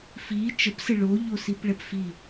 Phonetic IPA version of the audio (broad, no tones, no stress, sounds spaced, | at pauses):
f i t͡ʃ ə p s ɘ ɭ o ʎ o s i p ɭ ɛ p f i